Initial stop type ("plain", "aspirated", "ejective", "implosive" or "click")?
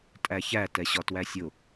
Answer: ejective